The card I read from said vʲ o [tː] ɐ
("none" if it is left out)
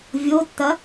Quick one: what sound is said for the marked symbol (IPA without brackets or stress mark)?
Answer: tː